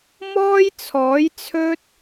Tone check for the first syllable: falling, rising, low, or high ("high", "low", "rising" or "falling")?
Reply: high